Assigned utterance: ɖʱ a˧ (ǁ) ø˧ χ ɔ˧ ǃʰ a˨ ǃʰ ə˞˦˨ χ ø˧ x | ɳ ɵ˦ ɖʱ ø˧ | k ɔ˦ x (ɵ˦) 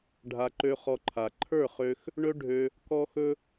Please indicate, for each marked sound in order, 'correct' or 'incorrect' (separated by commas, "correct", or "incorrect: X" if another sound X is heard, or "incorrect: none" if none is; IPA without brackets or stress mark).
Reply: incorrect: ǃ, correct